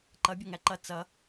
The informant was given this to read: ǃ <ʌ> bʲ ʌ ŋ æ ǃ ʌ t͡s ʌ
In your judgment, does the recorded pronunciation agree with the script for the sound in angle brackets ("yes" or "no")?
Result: yes